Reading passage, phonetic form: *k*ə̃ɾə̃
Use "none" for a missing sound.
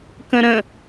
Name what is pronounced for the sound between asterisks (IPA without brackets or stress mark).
k